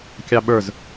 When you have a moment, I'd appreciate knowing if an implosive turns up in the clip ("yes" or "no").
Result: yes